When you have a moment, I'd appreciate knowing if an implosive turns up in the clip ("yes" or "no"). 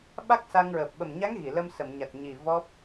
yes